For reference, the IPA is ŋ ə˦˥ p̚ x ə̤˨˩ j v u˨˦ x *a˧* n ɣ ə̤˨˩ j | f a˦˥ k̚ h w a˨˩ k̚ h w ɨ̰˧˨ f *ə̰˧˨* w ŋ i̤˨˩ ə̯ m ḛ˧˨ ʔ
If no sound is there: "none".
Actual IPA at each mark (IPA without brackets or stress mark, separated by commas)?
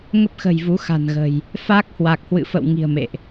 a̤˨˩, ə̰˧˨